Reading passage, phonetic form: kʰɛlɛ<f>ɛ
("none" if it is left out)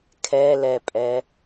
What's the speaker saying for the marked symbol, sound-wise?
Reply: pʼ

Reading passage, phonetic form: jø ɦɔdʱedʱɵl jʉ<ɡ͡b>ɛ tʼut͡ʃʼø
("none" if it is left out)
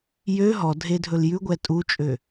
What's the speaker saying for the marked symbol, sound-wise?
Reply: ɡʷ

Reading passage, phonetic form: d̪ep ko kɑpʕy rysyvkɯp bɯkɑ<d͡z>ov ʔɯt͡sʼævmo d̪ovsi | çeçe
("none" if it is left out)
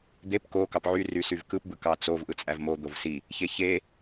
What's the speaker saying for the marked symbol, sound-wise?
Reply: t͡s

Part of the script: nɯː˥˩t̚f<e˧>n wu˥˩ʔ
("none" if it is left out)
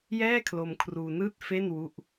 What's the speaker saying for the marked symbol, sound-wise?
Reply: e˥˩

